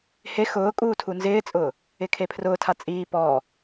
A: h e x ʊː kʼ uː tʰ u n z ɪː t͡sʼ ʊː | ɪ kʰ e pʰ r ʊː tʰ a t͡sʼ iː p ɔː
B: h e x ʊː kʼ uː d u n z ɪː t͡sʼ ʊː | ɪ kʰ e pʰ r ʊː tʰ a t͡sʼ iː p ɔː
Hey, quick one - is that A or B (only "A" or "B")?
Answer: A